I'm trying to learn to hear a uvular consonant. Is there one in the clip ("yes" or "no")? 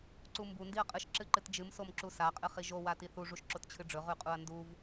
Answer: yes